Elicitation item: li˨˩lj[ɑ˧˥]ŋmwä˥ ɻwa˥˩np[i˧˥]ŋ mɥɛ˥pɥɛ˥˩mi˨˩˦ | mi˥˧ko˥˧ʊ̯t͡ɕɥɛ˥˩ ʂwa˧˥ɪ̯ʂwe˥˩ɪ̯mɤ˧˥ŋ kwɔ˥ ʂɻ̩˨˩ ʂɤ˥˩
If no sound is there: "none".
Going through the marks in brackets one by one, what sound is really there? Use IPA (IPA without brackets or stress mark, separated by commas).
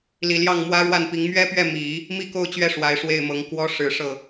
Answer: ɑ˥˩, i˧˥